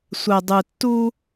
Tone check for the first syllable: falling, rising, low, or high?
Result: low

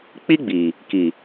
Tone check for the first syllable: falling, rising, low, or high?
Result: high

